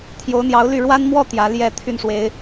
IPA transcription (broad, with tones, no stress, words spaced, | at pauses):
t̪ʰjo˧˥ʊ̯n̪jɑ˧˥ʊ̯ly˥˩ ɻwa˥nmwɔ˥˩ t̪jä˧˥ljɛ˥˧t̪ʰy˥˩n ʂwe˧˥ɪ̯